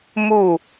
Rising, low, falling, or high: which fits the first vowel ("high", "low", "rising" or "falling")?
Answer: falling